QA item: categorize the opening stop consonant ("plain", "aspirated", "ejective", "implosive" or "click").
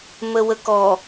plain